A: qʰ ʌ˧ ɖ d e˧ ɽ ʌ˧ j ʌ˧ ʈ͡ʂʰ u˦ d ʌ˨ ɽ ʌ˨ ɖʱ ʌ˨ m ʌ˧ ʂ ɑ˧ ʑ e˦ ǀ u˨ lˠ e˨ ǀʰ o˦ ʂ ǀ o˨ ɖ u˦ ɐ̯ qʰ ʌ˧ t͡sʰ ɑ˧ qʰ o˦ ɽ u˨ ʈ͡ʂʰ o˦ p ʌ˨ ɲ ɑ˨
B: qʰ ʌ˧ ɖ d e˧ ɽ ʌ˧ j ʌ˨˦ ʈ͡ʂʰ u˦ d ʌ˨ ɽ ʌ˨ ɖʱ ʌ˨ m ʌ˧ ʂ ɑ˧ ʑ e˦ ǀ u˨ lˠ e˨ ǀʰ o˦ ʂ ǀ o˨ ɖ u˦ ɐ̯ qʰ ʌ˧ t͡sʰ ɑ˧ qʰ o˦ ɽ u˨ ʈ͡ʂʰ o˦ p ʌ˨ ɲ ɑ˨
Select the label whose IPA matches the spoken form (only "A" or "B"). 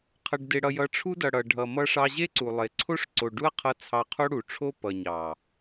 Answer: B